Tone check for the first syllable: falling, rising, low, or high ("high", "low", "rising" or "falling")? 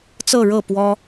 falling